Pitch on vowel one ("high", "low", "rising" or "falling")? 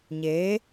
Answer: rising